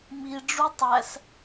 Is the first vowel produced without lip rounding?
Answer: yes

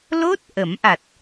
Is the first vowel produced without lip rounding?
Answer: no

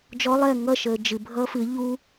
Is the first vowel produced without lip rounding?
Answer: no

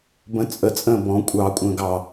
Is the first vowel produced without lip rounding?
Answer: yes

